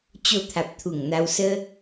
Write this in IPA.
t͡ɕ o˧ t̪ʰ a˨ p̚ t̪ʰ u˨˩ ŋ n̪ a˧ w s ə˦

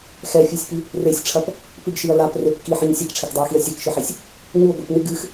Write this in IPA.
x ɛ fʲ ɛ sʲ p i | r e sʲ ʈ͡ʂʰ ɐ p | p ɨ ɡ ʃ i ɐ̯ l a p r e p k i ħ ɨ ɲ sʲ a k ʈ͡ʂʰ e k dˤ ɛ ɐ̯ x i ɐ̯ sʲ ɛ k ʃ ɨ ħ ɛ sʲ | ɲ u ɡʷ i p ɲ ɨ ɡ ɨ x

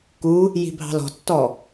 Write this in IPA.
k u | j i̤ bʱ ɑ̤ l ɔ̤ tː ɔ

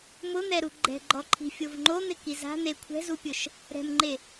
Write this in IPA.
m ʊ n̪ ɛ ɾ u ɡ͡ǃ ɛ̤ ɡ͡ǃ ɔ ǃʰ i̤ fʲ o v ŋ͡ǃ o n̪ ɪ k i z a̤ n̪ e kʷʰ ɛ̤ z u pʲ ʊ ʃ | ɾ ɛ̤ m ŋ͡ǃ e

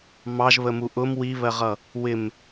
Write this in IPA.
m ɑ ʒ β ə m u ʔ ʊ m w i β ɜ ʁ ʌ | w ɪ m

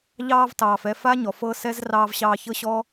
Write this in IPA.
ʎ ɑː˧ v t ɑː˨ f ɛ˧ f a˦ ɲ ɔ˨ f ɤ˦ s ɛ˦ z r ɑː˧ v ɕ ɑː˧ ç ɤ˦ ɕ ɔː˦

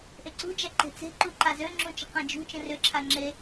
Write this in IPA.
ʔ e ǀ ṳ d͡ʒ a ǃ e̤ t͡s e̤ ǃ u ǃ a z ø ŋ͡ǁ ũ t͡ʃ ə̤ q ã d͡ʒ ṳ t͡ʃ ə̃ r ʏ ǁʰ a ŋ͡ǁ e

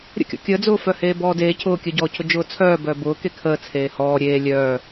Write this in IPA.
ɾʲ ə̰ kʲ ɔ̰ kʲ əː d͡z ʊː f œ h eː b ɔː d eː cʰ ʊː kʲ œ ɟ ɔː cʰ ʊ d͡ʒ ʊː t͡sʰ œː b œː b ʊː k e kʰ əː t͡sʰ eː h ɔː ɾʲ eː lʲ œː

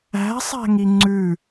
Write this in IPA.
æ̤ sˤ æ̤ ŋ i ŋ͡ǀ ʉ

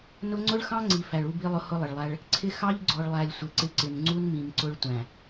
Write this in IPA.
n ʊ˦ ŋ͡ǀ ʊ˦ ɭ x ɑ̃˦ ŋ͡ǀ i˨ f æ˨ ɭ u˦ b i˦ lˠ ʊ˦ h ʊ˦ lˠ ɪ˨ ɭ lˠ æ˦ ɭ | ǀʰ ɪ˦ x ɑ˦ ʎ ɡ͡ǀ ɔ˨ ɭ lˠ æ˨ lʲ sʷ ɪ˨ ǀ ɪ˦ ǀ ɪ˨ n ŋ͡ǀ u˦ n m ĩ˨ m ǀ ʊ˦ ɭ tʷ æ̃˨

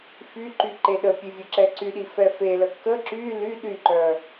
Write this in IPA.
f y ǃ y ǃ e ɗ ə pʲ e vʲ ə ǁ ɛ ǀ y ɗ i f ɛ f e l ə k ə ǁ y l y ɗ y ǃ œ

